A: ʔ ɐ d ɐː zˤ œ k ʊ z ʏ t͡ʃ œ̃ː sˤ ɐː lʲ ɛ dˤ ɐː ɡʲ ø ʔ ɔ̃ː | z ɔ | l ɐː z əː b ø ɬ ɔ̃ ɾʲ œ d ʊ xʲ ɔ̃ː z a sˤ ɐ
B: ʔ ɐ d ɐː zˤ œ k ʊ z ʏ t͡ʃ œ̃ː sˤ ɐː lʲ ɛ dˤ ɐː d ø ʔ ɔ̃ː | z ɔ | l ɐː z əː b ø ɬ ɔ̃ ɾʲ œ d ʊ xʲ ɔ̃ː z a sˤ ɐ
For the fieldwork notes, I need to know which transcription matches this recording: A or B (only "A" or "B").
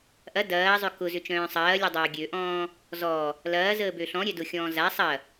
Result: A